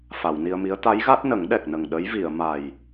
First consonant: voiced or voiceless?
voiceless